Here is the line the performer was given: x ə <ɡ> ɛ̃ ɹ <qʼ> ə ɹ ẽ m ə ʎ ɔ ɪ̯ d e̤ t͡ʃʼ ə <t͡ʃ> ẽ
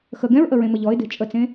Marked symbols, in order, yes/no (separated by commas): yes, no, no